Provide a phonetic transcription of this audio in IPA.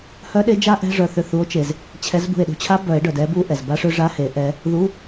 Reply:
h œ˦˥ ɗ e˦˥ d͡ʒ a˦˥ ʔ ɛ̤˧˥˧ ʐ œ˧˩ θ ʏ˧˩ θ u˨˦ o̯ t͡ʃ e˩ z | t͡ɕʰ ɛ˨˦ z b ṳ˧˩ e̯ ɗ ṳ˧˩ t͡ɕʰ a˦˥ b œ˨˩˦ e̯ ɖ œ˩ d ɛ˨˦ b u˧˥˧ ʔ ɛ˩ z b a˦˥ ʂ ʏ˦˥ ʐ a˧˥˧ h e˨˩˦ ʔ ɛ˨˦ | ð u˧˥˧

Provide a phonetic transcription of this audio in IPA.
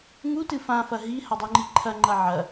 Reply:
ŋ u t ɨ f ã f ɐ ɦ i h a dˤ u ŋ͡ǃ i ǃʰ ɐ ŋ͡ǃ ɐ ʕ ɐ

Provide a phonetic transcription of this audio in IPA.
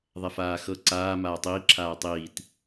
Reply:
ðˤ ɛ f aː x ɤ ǀ aː m aː tˤ iː ǁʰ aː tˤ iː t

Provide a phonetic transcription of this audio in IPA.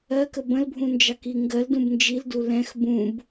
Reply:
ɜ k ə b ə̃ l bʱ ũ n d͡ʒ ɑ k i ŋ ɡ ɜ l d ũ b n d͡ʒ i l d u l ɛ̃ x b ũ b

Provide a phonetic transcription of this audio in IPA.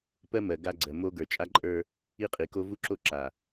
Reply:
p ɜ˦ m ɜ˨ ɡ a˦ ɡ͡ǀ ɜ˨ m o˦ ɡ ə˞˨ t͡ʃʼ a˦ ǃʼ ə˞˦ | i˦ qʼ i˨ k o˦ v u˦ ǁ o˦ ǁ a˨

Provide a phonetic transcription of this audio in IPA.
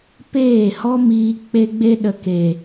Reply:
p eː˦˨ h ɔ˦ m iː˧ k͡p e˦ ɡ͡b e˦ ɗ ə˨ k e˨

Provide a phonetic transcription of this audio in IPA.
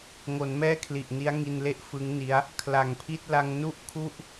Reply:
ŋ o˩˦ n m ɛː˥˩ kʰ l i˨˩ ʔ n i˦˥ a̯ ŋ i˧ n l e˥˩ ʔ f ɯ˦˥ ŋ n i˦˥ a̯ | kʰ l a˩˦ ŋ pʰ i˥˩ t̚ l a˧ ŋ n u˥˩ ʔ kʰ u˥˩ ʔ

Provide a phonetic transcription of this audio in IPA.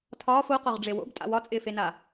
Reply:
tʰ ɒː f o q ɒ ʁ ɖ͡ʐ e w o̰ b tʼ a̰ w ɒ t͡sʼ ɪː f e n a

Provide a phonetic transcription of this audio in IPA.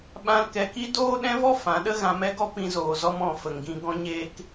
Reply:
ɓ ã˦ l k ɛ˧ k i˦ d oː˦ ɗ ɛ̃˦ v ɔ˦ f ã˨˦ ɗ ə˦ ɣ ã˧ m ɛ˦ ɡ ɔ˦ p ĩ˧ z oː˨ z ɔ˧ m ɔ̃˨ f ə˨ ŋ ɡ ĩ˧ ɡ ɔ̃˧ ɲ eː˧ k

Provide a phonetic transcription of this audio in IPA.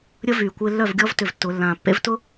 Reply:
ɾʲ ə˦ v yː˨ kʷ ɪː˧ lː œ˦˨ v ɡʲ ɔ˦ v t ʏ˧ v tː ʊ˨˦ lː ãː˨ pː ḛ˦ v t ʊ˦

